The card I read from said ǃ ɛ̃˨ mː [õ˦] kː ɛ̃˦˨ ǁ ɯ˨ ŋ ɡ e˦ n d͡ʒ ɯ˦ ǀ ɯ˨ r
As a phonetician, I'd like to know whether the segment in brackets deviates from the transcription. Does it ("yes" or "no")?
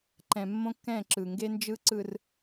no